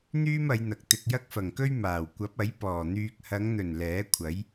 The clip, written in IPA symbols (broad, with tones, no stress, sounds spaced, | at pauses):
n̪ yː˥ m ɐ˨˧ j n̪ ɐ˨ k̚ t̪ ɪ˨ k̚ j ɐ˥ k̚ f ɐ˨˩ ŋ k ɵ˥ ɥ m aː˨˩ w kʷ ɐ˨˥ p̚ ɐ˨˥ j p ɔː˨˩ n̪ yː˨ k̚ h ɐ˨˧ ŋ n̪ ɵ˨˩ n l ɛː˨˥ kʷʰ ɐ˨˥ j